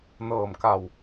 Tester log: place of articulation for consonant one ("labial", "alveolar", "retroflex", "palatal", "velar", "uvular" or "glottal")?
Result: alveolar